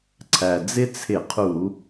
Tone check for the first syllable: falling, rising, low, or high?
low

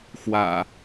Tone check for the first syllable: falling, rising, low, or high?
low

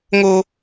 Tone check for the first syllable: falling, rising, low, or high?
high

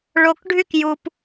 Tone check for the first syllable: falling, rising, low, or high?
low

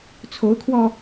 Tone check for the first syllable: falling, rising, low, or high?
rising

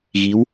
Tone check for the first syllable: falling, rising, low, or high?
rising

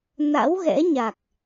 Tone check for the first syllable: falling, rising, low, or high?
rising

